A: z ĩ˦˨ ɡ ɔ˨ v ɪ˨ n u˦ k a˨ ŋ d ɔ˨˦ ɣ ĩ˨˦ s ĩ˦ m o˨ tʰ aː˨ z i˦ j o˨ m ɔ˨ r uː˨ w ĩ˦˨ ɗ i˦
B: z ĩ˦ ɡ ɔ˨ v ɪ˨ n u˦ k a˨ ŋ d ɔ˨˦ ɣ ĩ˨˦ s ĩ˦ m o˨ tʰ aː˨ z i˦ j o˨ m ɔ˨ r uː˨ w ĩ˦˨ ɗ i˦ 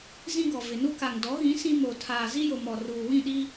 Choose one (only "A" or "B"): B